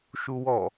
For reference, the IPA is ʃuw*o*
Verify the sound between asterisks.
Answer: incorrect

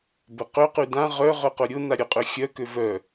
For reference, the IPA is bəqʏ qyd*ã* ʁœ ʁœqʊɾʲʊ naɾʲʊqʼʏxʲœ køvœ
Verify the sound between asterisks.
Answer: correct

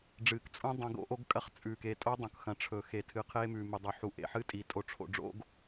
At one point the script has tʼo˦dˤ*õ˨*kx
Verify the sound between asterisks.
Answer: correct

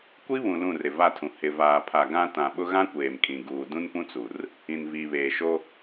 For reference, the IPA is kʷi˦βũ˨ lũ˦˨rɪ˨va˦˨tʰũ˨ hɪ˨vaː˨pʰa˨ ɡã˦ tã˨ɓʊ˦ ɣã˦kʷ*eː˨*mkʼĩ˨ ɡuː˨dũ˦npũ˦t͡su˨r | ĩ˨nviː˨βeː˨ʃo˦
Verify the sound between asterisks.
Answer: correct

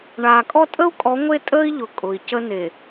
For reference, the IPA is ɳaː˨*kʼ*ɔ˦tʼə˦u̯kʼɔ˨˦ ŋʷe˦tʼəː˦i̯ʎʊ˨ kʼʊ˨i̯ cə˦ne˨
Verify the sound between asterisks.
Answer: correct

